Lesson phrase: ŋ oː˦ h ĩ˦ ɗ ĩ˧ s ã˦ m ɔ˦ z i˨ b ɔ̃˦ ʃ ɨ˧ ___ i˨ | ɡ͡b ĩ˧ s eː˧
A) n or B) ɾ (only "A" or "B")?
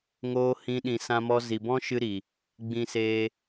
B